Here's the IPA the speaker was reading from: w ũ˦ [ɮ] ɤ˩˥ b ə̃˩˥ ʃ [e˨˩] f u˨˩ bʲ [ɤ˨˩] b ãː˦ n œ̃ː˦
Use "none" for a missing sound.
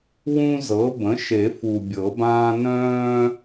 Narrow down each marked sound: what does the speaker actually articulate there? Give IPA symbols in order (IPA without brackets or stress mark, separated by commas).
z, e˨˩˦, ɤ˨˩˦